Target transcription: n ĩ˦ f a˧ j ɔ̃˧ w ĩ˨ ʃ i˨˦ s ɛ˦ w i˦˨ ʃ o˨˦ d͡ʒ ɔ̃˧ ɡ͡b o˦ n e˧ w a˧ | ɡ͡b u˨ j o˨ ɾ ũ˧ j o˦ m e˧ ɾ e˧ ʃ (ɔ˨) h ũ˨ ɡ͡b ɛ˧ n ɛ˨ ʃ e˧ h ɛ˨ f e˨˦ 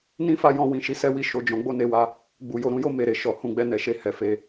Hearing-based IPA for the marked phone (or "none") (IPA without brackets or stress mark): ɔ˨